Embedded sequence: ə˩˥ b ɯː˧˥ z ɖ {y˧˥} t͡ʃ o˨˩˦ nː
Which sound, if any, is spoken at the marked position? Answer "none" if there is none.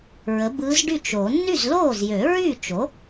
y˥˩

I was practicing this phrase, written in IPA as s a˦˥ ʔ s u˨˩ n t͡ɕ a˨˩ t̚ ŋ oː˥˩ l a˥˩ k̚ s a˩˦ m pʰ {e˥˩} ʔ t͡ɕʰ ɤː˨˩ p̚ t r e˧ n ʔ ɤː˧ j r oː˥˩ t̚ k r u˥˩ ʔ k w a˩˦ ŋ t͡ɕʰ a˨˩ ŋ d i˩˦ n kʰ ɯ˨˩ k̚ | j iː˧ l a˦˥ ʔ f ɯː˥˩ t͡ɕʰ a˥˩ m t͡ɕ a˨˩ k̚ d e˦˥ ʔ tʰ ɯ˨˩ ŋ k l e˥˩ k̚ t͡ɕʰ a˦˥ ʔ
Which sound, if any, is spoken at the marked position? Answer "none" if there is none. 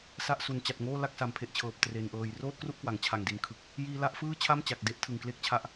e˨˩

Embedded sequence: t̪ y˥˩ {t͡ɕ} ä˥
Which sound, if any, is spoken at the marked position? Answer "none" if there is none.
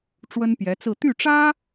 ʈ͡ʂ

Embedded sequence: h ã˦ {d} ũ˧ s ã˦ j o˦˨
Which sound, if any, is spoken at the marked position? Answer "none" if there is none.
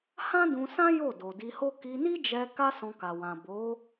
d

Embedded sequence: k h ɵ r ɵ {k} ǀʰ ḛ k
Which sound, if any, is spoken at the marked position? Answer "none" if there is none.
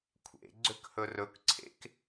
k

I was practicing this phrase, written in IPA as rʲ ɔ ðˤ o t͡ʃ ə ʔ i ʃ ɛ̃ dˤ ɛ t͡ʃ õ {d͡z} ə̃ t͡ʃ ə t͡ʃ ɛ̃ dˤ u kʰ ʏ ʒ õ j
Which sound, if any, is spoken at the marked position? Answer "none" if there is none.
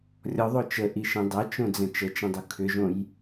d͡z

